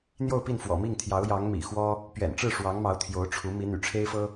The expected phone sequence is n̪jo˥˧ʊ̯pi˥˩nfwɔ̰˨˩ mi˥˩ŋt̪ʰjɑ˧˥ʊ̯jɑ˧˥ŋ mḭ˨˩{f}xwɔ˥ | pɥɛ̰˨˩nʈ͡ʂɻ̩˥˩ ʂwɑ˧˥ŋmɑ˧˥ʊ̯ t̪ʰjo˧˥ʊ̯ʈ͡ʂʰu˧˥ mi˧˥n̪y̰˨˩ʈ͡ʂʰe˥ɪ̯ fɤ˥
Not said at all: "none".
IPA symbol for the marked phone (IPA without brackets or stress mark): none